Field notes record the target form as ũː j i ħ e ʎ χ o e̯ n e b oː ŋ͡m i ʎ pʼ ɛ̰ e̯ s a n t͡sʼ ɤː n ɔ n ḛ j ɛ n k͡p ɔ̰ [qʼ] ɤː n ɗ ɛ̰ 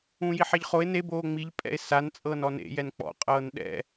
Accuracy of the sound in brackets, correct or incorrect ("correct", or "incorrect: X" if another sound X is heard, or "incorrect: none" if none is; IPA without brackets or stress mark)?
correct